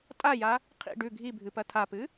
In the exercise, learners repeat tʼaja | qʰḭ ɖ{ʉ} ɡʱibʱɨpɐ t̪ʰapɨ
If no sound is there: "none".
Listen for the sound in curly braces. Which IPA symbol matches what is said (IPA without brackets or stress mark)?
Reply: ʉ